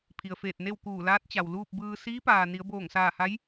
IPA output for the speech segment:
pʰ i˩ ə̯ f eː˧˩ t̚ n e˥˨ w k uː˧˩ l aː˧˥ t̚ t͡ɕ a˩ w l uː˥˨ p̚ b ɯː˧ s iː˧˥ p aː˩ n i˩˧ ə̯ b oː˧˩ ŋ s aː˧˩ h a˧˥ j

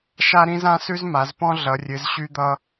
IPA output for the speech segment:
ʃ a˥ ɾ ĩ˥ z ã˥ s ʉ˥ z m a˨˦ z p ɔ̃˥ ɮ ʌ˨˦ rʲ ɨ˨˦ z ɕ y˥ d̪ ʌ˥

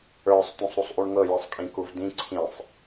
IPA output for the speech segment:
ə˞ sˤ t̪ ũ sˤ ɾ u sˤ ʔ u ɳ ŋ ɤ j i sˤ kʼ ĩ k u v d ĩ ǀʰ ĩ sˤ

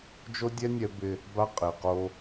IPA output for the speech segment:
d͡ʒ o˦ dʲ ɛ˦ nʲ ɛ˦ b ɪ˦ | b a˦ qʼ ɪ˨ q o˦

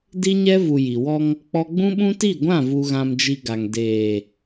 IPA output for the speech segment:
d i˦ ɲ ɛ˦ v u˨ j i˨ w ɔ˦ ŋ | k͡p ɔ˦ ɡ͡b ũ˦ ɓ ũ˦ t i˦˨ ɡʷ ã˦˨ v u˨ ɣ ã˨ m d͡ʒ i˨ ɡ a˨ ŋ d eː˨

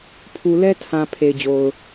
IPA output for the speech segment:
pʰ u˨ l ɛ˦ tʰ ã˨ pʰ e˨ ɪ̯ d͡ʑ o˨ ʊ̯

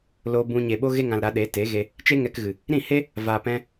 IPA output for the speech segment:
l o˧ b ũ˧ ɲ e˨ ɓ o˧ ɣ e˧ ŋ ã˨ l ɾ a˨˦ ɗ e˨˦ t e˨˦ ɣ e˧ | t͡ʃ e˦ ŋ ɛ˧ k ɣ ɨ˨ | ɾ ĩ˦˨ h e˦ | v aː˨ p ɛ̃˧

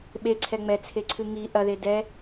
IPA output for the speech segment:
ɓ e ǀʰ ɛ ŋ͡m ɛ t͡sʰ e ǀʰ ɨ ŋ i ʔ ɐ ð e d ɛ

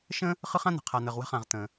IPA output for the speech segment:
ʃ ə̃˥ | χ ɯ˥ χ ã˥ n̪ ə̤˨ qʰ a˨ n̪ ə˨ ʁ w ə̤˦ χ ã˨ ʁ t̪ ə̃˩

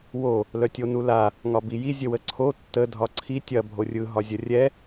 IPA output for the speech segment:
w o | l œ tʲ o n u l a | ŋ ɒ b i j i zʲ ə w ə ǀʰ o tː ə dʱ ɒ ǀʰ i tʲ ɐ bʱ o rʲ ɯ ɦ ɒ zʲ ɐ rʲ ɛ

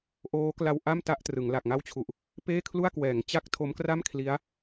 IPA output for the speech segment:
ʔ oː˦˥ k l a˧ w ʔ a˥˩ m t a˥˩ ʔ t r ɯ˩˦ ŋ l a˨˩ k̚ ŋ a˥˩ w t͡ɕʰ u˨˩ ʔ | p eː˥˩ kʰ l u˥˩ a̯ k w ɛː˩˦ ŋ t͡ɕ a˥˩ k̚ tʰ o˦˥ m k r a˥˩ m kʰ l i˦˥ a̯

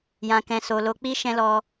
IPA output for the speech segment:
j ã˨ k ɛ̃˨ s o˨ l o˨˦ k͡p i˦ ʃ ɛ̃˦ l ɔ˧

